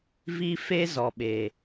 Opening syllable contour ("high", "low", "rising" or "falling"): high